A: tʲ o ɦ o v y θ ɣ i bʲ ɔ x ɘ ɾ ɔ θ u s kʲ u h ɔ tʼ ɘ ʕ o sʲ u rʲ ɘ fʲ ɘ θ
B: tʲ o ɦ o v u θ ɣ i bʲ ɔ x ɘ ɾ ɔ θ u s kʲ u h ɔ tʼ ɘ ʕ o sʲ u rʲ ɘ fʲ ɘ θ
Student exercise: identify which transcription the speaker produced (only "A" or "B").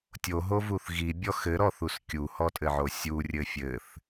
B